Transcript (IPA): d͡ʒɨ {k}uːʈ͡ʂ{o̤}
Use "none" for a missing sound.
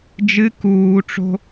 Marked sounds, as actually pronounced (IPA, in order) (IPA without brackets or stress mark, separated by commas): k, o̤